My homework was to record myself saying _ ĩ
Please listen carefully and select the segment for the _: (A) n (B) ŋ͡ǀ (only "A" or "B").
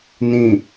A